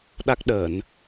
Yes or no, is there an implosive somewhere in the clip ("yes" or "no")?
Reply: yes